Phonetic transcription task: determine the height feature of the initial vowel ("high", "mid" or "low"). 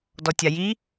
mid